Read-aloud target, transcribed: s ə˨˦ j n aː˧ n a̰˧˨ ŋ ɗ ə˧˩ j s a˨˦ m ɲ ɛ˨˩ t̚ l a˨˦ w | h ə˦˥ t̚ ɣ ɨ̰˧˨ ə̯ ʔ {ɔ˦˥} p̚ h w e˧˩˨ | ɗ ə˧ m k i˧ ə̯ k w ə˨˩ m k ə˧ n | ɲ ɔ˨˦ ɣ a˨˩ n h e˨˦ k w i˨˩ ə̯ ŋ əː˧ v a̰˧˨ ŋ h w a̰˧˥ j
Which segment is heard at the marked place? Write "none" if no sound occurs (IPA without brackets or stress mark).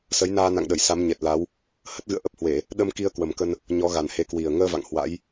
ə˦˥